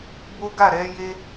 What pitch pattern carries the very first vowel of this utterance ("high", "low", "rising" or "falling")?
high